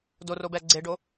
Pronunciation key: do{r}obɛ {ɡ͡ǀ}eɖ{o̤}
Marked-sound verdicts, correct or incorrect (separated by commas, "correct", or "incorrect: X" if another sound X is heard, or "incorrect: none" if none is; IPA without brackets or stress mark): correct, correct, incorrect: o